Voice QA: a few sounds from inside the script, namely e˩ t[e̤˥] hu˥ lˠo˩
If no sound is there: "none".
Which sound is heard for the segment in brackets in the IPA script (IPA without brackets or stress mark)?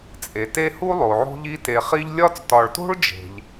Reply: e˥